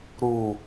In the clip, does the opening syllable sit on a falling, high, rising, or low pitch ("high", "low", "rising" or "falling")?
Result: low